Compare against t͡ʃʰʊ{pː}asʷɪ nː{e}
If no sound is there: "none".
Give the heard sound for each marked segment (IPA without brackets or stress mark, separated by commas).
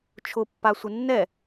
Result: pː, ɛ